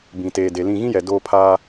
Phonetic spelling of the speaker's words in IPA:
b ĩ˨ t eː˨ d e˨ l ĩ˦˨ ɣ ĩ˦ j ɛ˨ d oː˦ pʰ aː˦

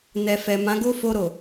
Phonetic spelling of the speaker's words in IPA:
n ɛ˨ f ɛ˨ m ã˨˦ ɡ o˦ f o˧ ɾ o˨

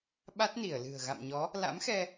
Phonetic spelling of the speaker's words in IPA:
ɓ a˦˥ t̚ n i˧˩ ə̯ l ɨ̤˨˩ ə̯ ɣ a̰˧˨ m ɲ ɔ˨˦ | l a̰˧˥ m x ɛ˧

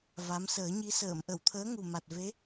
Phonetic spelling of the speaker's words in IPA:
v a˧˥ m s əː˨˩˦ ɲ i˧˥ s əː˨˩˨ m ʔ ə˨˩˨ w t̪ʰ əː˧˥ ŋ u˨˩ m a˨˩ t̚ v e˧˥

